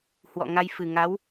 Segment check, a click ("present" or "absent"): absent